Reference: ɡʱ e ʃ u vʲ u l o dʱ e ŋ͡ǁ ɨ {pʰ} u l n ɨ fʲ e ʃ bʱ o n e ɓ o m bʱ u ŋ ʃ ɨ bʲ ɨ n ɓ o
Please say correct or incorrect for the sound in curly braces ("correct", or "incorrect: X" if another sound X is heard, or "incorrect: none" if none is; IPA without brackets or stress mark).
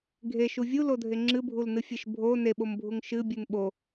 incorrect: bʱ